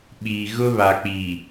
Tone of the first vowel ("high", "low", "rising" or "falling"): low